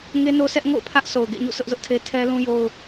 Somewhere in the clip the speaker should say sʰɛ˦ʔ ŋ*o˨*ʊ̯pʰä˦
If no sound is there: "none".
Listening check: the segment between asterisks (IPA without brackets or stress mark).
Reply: o̰˦˨